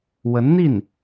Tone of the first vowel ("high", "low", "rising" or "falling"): rising